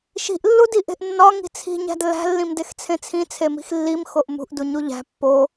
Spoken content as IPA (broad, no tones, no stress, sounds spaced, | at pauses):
ʃ i̤ ʔ lː u d i ʔ e̤ ʔ nː ɒ ŋ i̤ t͡sʰ i̤ ɲ æ̤ d lː æ̤ lː ĩ m d e x t͡sʰ ẽ t͡sʰ ĩ t͡sʰ e m i̤ x lː i m x o ʔ m ṳ ʔ d u ɲ u ʎ æ̤ pː o